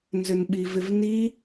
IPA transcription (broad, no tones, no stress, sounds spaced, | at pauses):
n z ʏ n ɓ i v ɪ v n i